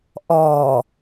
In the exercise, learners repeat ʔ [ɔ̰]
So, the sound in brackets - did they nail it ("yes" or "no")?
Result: no